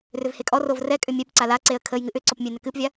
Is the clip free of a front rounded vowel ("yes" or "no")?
no